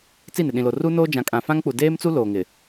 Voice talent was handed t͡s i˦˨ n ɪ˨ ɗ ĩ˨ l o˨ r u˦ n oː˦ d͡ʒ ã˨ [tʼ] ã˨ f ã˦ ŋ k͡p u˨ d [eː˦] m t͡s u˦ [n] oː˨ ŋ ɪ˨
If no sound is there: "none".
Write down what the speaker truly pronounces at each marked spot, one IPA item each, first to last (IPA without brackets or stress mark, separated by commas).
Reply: kʼ, eː˦, l